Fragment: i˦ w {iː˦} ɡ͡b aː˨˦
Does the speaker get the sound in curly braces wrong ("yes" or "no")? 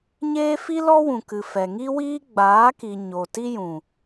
no